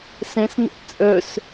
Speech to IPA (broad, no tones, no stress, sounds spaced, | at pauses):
s ɛ̃ s n ɛ̰ ʔ t͡sʼ œ s